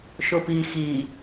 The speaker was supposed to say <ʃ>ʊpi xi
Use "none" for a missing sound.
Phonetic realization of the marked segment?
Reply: ʃ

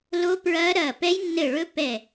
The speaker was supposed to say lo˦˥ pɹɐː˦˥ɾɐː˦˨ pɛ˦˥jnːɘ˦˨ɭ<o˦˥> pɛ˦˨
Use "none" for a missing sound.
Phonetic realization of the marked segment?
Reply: ɵ˦˥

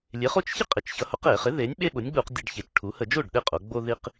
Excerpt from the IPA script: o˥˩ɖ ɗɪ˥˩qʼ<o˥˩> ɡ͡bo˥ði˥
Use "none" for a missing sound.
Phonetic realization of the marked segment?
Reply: o˩˧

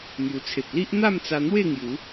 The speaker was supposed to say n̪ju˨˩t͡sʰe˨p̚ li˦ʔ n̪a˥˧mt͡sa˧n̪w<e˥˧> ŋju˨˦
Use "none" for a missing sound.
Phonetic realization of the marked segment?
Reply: e˥˧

